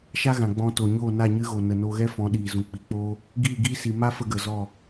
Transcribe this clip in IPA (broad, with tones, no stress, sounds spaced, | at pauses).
ʃ a˦ ɣ ã˨ ɡ͡b ɔ̃˧ t o˨ ɲ oː˦˨ n a˦˨ ɲ ɨ˧ ɣ o˨ n ə˨ n o˧ ɣ ɛ˦ f ɔ̃˨˦ ɗ iː˨ z ũ˨ k͡p i˨˦ k͡p oː˦ | ɡ iː˦˨ ɡ iː˦ s i˨ m a˦ f ə˧ ɡ ə˨ z ɔ˦˨